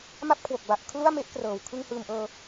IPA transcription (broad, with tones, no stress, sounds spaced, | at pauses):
m a˥˩ p̚ kʰ w o˨˩ k̚ b a˨˩ ʔ kʰ l u˥˩ a̯ m e˦˥ ʔ k r ɤː˨˩ w kʰ ɯ˧ ŋ h ɯː˨˩ m ʔ ɤː˧